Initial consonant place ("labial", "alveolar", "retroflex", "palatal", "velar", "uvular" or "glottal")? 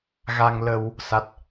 velar